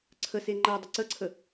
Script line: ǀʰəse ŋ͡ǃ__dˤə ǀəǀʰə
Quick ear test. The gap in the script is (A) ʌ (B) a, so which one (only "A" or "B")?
B